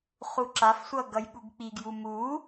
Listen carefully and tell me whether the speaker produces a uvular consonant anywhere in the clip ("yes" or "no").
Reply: yes